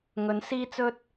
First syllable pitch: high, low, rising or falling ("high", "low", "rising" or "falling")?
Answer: rising